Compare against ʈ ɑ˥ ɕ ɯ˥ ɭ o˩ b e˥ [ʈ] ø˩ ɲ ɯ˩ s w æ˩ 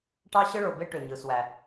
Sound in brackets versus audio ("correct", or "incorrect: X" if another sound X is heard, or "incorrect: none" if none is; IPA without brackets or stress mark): correct